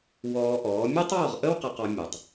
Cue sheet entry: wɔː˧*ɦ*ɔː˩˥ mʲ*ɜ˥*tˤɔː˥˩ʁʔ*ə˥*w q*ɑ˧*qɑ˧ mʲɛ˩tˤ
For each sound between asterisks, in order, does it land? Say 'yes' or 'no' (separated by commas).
no, yes, yes, no